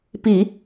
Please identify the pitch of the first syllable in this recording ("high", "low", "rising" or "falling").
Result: low